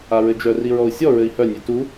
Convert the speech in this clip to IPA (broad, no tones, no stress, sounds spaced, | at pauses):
a ɹ ɘ d͡ʒ œ r i ɹ ɔ u̯ sʲ ɔ ɹ ɘ i̯ h œ nʲ ø t u